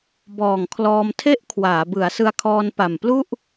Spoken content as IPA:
bɔː˨˩ŋkʰlɔː˧mtʰe˥˩ʔ kʰwaː˩˦ bɯ˩˦a̯sɯ˧a̯kʰɔː˧npa˨˩m plu˥˩ʔ

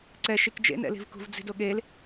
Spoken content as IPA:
ǀɛ ʃikd͡ʒḛn ɛ̰li̤vkṳv d͡zi̤doɠel

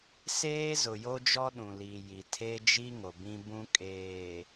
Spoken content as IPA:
seː˦zʊ˨jo˦d͡ʒɔ˦ ɗũ˨li˨ji˨ tʰe˦d͡ʒi˦ ŋo˨bĩ˦bũ˦ kʼeː˨

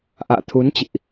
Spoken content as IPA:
ʔa̰ː˧˨t̪ʰu˨˦nt͡ɕḭ˧˨ʔ

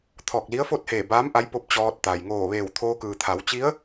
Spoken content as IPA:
t̪ʰɔː˧˩k̚li˧˥ə̯fo˥˨t̚heː˧˩ baː˧˥m ʔa˧˥jpo˧˥p̚ t͡ɕɔː˧t̚t̪a˩j ŋoː˧˩ʋeː˧˩wt̪ʰoː˧ kɯː˩t̪ʰa˩˧wt͡ɕi˧˥ə̯

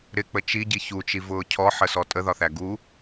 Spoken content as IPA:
ɾɪk͡pə t͡ʃiɟi çut͡ʃivʊː cʰɔħəsɔ tʼəðɒθæ ɡu

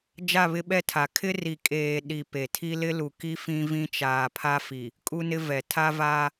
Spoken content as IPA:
d͡ʒa˦˨βɪ˦ɓɛ˦tʰa˨ kʰɪ˦ri˨ kʼeː˨ ɗi˨ pe˨tʰi˦ lɪ˦lu˨ki˦ fĩ˦ vĩ˦t͡ʃaː˨pʰa˦fi˨ | kʼu˦nɪ˦vɛ˨ tʰa˦vaː˦

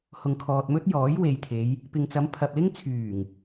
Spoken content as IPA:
hʊ˨ŋkʰɔː˨t̚mɵ˥t̚ jɔː˨˥jwe˨jt̪ʰe˨˧j | pɪ˨ŋt͡sɐ˨˧mpʰɐ˨p̚lɪ˥ŋ t͡sʰyː˨˩ŋ

